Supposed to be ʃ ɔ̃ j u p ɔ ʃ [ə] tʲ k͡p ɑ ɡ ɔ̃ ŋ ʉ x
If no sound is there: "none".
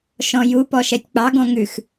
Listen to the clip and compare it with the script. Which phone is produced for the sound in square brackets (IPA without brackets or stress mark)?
ɛ